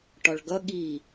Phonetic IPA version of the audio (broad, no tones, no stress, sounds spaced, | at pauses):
ʈ ɒ ɭ ɡ ʌ ɠ i